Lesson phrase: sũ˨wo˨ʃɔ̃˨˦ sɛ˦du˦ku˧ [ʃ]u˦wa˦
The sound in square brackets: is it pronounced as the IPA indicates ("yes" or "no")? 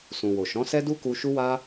yes